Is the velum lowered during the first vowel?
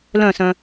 yes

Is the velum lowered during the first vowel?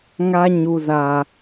no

